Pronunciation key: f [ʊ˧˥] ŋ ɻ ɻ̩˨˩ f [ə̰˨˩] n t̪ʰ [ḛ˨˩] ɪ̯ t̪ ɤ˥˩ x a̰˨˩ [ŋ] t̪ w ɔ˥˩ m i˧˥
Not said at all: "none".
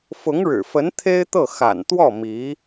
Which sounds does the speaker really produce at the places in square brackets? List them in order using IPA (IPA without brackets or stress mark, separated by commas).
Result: ʊ˧˥, ə˧˥, e˥, n